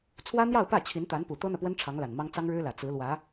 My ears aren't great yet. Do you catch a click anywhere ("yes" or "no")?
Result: no